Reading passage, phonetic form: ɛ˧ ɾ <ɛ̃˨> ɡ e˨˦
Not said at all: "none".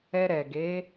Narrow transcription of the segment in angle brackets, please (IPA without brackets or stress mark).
ɛ˨